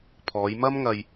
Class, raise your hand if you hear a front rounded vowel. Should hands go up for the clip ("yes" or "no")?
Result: no